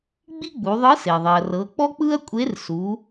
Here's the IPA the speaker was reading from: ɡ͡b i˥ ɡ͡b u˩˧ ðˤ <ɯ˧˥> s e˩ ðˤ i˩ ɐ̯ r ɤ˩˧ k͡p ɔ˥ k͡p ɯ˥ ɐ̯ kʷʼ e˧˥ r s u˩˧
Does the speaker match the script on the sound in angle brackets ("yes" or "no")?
yes